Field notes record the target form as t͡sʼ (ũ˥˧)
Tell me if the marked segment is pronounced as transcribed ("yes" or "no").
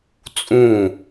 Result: yes